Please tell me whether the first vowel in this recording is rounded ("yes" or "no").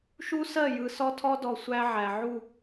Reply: yes